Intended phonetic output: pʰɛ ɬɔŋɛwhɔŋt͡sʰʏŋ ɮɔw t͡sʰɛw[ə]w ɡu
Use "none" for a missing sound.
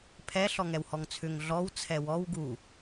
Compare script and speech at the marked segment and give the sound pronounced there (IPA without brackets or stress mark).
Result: ɔ